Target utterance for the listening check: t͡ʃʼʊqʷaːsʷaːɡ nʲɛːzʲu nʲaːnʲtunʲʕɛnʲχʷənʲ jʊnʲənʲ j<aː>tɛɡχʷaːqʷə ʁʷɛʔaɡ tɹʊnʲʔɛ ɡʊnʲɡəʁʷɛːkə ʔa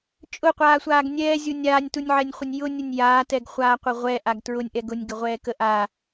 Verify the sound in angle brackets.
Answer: correct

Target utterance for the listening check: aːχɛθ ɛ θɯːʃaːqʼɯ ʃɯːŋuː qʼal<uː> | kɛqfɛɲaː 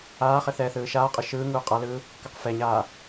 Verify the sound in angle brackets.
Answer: incorrect: ɯː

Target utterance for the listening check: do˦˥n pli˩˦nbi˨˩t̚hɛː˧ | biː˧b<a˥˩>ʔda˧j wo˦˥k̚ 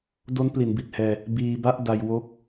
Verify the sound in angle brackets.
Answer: correct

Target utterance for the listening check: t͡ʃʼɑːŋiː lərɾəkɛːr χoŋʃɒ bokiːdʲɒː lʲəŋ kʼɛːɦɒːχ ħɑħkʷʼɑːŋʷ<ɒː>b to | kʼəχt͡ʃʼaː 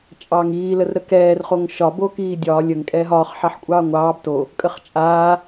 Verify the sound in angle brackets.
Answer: incorrect: ɑː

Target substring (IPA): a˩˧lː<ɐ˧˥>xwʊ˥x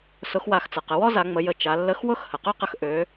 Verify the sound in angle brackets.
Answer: incorrect: ə˧˥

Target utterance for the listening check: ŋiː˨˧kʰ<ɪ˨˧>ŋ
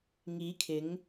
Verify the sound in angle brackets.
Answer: correct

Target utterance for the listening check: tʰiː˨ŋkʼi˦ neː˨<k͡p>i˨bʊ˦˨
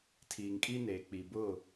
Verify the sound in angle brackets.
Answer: correct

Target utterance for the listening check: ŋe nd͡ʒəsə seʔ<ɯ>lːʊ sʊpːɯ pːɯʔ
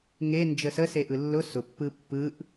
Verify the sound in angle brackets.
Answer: correct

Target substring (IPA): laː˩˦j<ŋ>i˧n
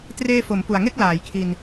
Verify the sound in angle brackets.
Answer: incorrect: kʰ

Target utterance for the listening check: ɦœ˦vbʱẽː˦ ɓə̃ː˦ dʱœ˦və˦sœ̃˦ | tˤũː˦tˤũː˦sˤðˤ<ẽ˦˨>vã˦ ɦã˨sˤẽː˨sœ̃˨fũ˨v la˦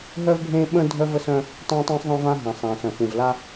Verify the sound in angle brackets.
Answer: incorrect: ẽ˦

